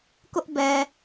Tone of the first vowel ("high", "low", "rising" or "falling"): high